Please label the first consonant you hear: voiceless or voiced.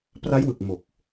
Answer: voiceless